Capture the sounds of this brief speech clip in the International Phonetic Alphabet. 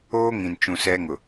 oː˦ ŋ ĩ˨ n t͡ʃ ũ˨ s ɛ˦ ŋ ʊ˨

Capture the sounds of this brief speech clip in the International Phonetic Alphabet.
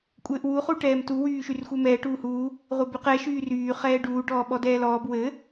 kʷʼ ɘː ʔ w u χ u ʈ ɛː m t u w yː ʃ y r xʷ ɘ m ɛː ʈ uː h uː | ʁʷ ɘ b y q ɛ ʃ yː r yː χ ɛː ɖ uː ɖ ɔː ɓ ɔ d ɛː l ɔː b w ɘ

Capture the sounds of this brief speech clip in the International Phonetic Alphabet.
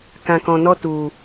k ã˧ k ɔ̃˧ n ɔ˦ t u˧

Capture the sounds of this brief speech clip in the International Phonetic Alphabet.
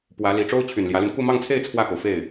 p w ä˧˥ l i˧˥ ʈ͡ʂ o˥ ʊ̯ t͡ɕʰ y˨˩ n l j ä˧˥ l y˧ n k u˥˧ m ɑ˥˧ ŋ t͡sʰ e˥˧ ɪ̯ t͡sʰ w ä˥˩ k o˩ ʊ̯ f e˥˩ ɪ̯

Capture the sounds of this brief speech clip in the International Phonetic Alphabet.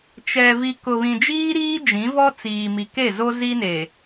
t͡ʃ ɛ˨ v i˨ k ʊ˨ β ĩ˨ d͡ʒ iː˦ ɾ iː˦ d͡ʒ ĩ˨˦ v ɔ˦ t͡s iː˨ m i˨ k e˦˨ z o˦ z i˦ n e˨

